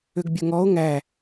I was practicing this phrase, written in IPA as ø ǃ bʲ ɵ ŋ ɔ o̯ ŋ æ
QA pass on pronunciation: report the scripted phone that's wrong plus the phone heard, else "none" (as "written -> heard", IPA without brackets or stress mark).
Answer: ǃ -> ɡ